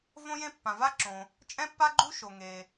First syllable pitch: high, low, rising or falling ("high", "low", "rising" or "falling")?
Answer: high